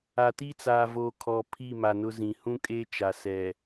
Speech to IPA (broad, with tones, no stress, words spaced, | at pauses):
a˨ti˦t͡saː˨voː˨ kʰɔ˨ pʰi˦˨ma˨nʊ˦zĩ˨ hũ˦kʼeː˦t͡ʃa˨sɛ˨